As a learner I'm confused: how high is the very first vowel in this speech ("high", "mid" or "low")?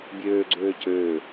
mid